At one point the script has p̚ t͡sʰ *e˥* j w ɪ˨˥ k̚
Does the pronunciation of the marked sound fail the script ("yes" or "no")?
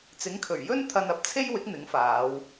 no